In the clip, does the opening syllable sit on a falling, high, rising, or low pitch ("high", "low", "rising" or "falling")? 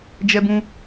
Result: high